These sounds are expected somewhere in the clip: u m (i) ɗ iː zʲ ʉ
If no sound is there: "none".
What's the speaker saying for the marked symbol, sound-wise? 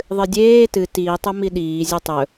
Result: i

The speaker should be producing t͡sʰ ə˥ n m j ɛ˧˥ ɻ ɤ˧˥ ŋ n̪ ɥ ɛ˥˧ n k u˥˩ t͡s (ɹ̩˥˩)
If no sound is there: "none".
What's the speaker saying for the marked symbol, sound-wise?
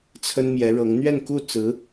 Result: ɹ̩˧˥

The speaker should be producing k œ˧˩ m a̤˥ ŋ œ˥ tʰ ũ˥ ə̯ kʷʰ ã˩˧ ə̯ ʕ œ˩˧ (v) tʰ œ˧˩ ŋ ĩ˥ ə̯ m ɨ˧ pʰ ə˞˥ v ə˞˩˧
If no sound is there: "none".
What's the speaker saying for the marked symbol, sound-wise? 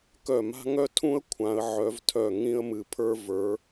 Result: v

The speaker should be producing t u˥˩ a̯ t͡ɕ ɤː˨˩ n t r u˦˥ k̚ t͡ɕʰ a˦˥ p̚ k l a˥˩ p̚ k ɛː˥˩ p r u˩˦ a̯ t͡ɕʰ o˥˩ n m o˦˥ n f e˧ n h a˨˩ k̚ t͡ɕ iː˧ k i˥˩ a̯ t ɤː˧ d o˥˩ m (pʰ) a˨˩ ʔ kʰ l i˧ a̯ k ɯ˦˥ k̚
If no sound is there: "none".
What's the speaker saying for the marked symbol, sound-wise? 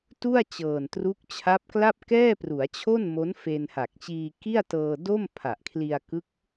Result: pʰ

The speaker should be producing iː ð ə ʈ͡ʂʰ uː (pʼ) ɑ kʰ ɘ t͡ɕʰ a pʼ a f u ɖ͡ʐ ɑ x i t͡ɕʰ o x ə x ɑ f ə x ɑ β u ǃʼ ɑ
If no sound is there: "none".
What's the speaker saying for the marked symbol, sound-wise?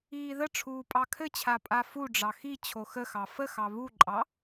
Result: pʼ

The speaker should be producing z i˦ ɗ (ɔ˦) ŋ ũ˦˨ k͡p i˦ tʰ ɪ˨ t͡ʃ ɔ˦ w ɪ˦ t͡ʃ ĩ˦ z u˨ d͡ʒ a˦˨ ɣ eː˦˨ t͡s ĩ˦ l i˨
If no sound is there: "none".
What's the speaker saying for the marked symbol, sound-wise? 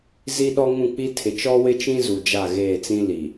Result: ɔ˦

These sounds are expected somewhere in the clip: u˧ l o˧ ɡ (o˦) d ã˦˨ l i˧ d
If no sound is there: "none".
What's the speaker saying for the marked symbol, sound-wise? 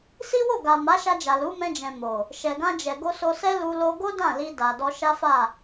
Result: o˦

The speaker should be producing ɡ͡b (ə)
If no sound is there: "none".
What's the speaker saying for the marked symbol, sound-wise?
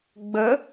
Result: ə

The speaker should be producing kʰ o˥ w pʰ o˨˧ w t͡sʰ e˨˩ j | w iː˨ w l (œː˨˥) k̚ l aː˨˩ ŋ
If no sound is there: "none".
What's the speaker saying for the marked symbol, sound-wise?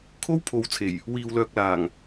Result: œː˨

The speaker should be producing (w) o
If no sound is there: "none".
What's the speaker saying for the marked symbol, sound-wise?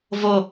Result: v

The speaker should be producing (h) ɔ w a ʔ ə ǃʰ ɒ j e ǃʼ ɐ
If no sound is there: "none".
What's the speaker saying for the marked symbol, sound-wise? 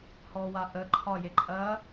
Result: h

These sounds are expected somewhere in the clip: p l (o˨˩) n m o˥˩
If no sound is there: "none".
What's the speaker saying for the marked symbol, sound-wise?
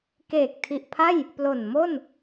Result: o˨˩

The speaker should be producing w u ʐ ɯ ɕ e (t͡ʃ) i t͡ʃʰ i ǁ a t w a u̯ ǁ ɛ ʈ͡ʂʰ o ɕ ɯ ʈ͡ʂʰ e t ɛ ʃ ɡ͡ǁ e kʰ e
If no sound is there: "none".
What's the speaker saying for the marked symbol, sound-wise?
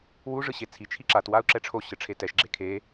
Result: t͡sʰ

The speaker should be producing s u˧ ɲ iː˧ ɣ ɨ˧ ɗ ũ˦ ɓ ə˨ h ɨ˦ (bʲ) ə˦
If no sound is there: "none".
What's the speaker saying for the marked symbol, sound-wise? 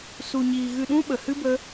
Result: b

